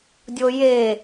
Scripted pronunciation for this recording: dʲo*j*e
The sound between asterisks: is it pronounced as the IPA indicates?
yes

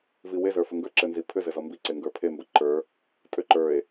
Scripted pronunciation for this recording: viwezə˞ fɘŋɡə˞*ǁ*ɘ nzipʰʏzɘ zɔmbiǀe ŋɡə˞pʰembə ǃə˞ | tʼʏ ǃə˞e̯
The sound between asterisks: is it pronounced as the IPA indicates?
yes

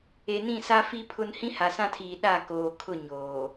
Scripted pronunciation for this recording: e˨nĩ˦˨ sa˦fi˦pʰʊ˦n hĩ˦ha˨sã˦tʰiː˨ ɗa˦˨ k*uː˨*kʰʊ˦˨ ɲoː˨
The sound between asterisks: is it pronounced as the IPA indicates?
no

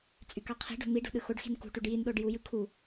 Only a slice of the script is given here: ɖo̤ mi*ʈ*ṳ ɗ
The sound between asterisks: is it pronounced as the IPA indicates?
no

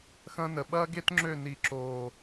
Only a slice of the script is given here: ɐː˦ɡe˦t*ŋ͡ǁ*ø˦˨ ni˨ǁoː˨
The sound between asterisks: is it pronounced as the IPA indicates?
yes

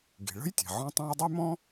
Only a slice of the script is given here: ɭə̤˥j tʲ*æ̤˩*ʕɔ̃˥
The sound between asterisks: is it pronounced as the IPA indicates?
no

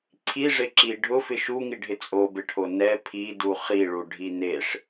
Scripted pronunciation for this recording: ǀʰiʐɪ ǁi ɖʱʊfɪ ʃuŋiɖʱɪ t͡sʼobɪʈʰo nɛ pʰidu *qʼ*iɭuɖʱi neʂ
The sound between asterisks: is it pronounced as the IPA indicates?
no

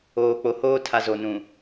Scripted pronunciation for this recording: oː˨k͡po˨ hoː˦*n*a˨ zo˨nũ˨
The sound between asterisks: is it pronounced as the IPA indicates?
no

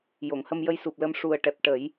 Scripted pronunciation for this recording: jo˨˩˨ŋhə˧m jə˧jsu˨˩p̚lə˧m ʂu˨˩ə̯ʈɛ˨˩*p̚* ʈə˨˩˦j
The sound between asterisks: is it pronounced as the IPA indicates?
yes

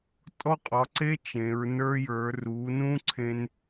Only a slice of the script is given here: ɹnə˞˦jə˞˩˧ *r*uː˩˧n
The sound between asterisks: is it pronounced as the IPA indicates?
yes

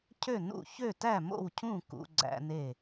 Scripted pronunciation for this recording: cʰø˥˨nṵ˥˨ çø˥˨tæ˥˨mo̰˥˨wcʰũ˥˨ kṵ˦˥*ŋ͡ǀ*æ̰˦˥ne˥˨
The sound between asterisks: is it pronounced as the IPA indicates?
no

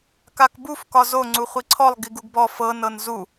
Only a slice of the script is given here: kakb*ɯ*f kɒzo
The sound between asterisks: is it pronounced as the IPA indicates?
no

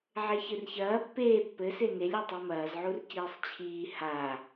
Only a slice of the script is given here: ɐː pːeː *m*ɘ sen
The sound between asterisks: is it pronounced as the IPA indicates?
no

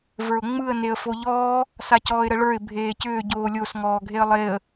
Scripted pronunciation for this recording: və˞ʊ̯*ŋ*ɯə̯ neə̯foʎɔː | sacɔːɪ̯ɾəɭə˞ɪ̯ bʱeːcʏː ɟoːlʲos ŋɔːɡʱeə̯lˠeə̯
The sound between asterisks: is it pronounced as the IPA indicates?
no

